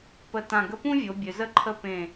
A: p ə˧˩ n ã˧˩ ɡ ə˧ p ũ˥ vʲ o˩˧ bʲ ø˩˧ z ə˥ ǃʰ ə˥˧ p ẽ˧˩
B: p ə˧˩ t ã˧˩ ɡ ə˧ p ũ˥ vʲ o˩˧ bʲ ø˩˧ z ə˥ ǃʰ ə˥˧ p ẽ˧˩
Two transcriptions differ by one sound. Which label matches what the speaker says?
B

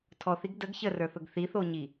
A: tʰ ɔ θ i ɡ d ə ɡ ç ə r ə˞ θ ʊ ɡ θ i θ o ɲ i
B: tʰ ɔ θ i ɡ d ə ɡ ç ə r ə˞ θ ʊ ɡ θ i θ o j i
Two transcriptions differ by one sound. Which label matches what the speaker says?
A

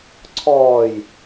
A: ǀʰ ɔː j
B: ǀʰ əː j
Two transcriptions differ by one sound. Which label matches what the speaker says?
A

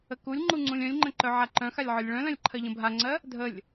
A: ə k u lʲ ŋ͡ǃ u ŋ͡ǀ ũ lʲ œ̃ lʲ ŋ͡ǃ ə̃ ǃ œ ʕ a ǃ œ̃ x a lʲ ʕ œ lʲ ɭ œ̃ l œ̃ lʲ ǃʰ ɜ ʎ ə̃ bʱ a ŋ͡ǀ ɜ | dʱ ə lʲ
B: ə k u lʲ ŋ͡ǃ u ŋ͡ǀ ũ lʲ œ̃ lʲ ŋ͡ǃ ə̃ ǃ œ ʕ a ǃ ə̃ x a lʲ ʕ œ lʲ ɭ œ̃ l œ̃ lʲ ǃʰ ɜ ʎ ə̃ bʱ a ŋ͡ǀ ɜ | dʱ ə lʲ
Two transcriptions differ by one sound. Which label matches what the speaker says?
A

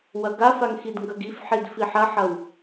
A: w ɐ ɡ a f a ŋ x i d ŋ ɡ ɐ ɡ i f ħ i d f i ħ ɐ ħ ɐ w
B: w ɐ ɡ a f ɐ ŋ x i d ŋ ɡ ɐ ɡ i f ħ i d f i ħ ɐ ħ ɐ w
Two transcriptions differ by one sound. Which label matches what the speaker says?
A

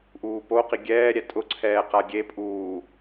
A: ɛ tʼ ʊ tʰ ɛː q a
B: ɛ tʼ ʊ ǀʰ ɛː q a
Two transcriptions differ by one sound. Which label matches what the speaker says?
B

